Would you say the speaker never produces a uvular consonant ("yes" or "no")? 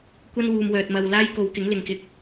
yes